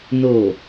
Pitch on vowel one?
low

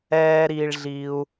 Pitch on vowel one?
high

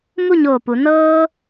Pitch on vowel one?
falling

